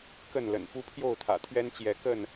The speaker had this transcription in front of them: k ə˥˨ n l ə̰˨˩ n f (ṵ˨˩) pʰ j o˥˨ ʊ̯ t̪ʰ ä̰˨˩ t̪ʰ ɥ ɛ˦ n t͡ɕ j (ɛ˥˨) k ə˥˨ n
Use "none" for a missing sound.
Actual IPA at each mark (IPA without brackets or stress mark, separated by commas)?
u˦, ɛ˨˦